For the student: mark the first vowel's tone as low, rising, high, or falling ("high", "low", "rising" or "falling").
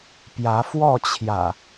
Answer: rising